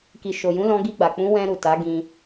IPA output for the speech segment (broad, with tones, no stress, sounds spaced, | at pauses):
k i˨ ʃ o˨ j ũ˨˦ l ɔ̃˧ ɡ i˧ ɡ͡b a˨ k͡p ũ˨˦ w ɛ̃˧ ɾ u˨ t a˨˦ ɡ ĩ˧